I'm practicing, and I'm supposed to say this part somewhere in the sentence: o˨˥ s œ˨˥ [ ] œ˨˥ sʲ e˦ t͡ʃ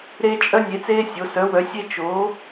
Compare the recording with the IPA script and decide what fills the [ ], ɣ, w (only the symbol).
w